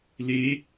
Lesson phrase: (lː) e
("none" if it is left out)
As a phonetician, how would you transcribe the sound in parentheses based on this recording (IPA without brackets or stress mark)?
l